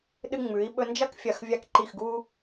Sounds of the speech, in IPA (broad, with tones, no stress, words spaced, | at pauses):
ɗɨ˧ŋ͡mʉ˩˧i̯ ɓɵ˧nd͡ʒɐ˥kfʲɐ˧˩x vʲa˧kǃi˧˩xɡu˧